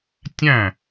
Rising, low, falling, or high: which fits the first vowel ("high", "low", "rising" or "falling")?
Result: falling